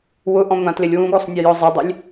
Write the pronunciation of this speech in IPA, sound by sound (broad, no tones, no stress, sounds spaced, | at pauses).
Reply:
w ʊ ʔ ɔ̃ ŋʷ ã t l ɪ lʲ w ũ ɡ o sˤ nʲ e j ɔ zˤ ɪ dˤ ɪ lʲ